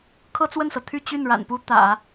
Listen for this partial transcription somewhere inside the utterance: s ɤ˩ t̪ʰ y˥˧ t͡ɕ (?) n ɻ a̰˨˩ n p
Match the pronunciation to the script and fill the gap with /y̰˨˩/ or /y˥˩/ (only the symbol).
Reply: y˥˩